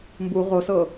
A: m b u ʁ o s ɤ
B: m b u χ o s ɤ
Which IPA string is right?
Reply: A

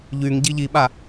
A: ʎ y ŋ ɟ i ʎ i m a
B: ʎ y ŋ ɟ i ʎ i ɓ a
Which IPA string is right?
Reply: B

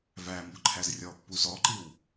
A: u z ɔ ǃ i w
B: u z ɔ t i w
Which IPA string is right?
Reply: A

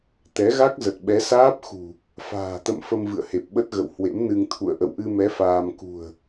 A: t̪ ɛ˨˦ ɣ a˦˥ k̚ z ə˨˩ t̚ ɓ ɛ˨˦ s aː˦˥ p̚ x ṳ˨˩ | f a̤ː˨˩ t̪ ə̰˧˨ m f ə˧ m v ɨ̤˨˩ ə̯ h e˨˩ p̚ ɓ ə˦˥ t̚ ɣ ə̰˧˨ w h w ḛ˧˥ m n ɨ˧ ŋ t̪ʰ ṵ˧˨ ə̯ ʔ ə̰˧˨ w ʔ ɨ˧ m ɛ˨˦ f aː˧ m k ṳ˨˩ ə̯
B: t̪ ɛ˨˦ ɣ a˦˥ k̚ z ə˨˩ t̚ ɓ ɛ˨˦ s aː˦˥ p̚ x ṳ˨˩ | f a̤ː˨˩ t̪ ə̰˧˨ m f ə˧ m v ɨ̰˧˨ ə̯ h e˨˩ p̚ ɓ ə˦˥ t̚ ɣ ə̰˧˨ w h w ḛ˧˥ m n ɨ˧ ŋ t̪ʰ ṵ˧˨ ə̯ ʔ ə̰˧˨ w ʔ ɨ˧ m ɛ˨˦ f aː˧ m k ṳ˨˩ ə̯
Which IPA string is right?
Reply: B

